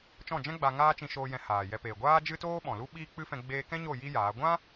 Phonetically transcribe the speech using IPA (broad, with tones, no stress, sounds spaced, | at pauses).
t͡ʃ ɔ̃˦˨ d͡ʒ ɛ̃˦ ɡ͡b a˧ ŋ aː˦ t͡ʃ ĩ˧ ʃ oː˧ j ɛ̃˧ h aː˨ j ɛ˧ p eː˨ ɡʷ aː˦ d͡ʒ ɨ˦ t oː˦ ɓ ɔ̃˨ l u˦ ɓ iː˦ k͡p ɨ˦ f ɛ̃˧ ɡ͡b eː˧ k ɛ̃˦ ɲ o˦˨ j i˦ j aː˨˦ ɡʷ ã˦